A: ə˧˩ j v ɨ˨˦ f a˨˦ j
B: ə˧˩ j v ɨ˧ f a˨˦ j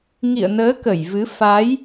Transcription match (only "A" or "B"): A